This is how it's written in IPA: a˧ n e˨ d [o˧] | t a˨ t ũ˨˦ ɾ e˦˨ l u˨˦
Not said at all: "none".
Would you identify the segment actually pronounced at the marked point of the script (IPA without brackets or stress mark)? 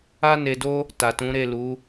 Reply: o˧